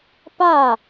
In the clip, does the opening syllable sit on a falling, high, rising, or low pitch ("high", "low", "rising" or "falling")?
falling